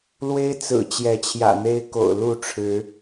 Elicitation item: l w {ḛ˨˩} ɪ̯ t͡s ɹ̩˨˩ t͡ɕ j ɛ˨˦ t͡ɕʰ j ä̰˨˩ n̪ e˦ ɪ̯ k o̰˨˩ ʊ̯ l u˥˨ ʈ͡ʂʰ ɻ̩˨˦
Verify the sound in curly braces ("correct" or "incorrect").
incorrect